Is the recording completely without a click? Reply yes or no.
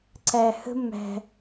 no